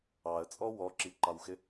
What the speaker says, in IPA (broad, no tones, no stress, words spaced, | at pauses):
ɑə̯t͡sʼɔ wɔǁiǃɑwxɪ